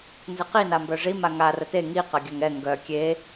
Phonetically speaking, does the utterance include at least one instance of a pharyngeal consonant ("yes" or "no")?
no